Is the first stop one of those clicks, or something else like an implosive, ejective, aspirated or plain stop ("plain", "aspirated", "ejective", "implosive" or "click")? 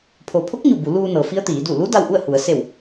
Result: aspirated